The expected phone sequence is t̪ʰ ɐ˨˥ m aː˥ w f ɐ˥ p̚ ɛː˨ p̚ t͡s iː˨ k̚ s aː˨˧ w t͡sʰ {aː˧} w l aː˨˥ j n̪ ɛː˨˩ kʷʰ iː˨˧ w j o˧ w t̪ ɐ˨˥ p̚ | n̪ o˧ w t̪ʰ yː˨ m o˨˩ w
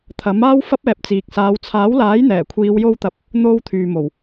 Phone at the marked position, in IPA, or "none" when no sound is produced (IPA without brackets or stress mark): aː˨˥